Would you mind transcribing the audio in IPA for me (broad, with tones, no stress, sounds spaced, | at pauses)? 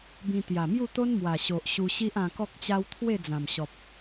b ĩ˧ t̪ j a˨˩ m j u˥˧ t̪ o˦ n m w a˨˩ ɕ o˨ ʔ ɕ u˧ ɕ i˦ ʔ ã˧ k ɔ˦ k̚ t͡ɕ a˦ w t̪ʰ w e˥˧ d͡z ã˨˩ m ɕ ɔ˨ p̚